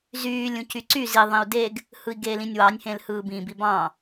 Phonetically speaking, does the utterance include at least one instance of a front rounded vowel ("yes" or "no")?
yes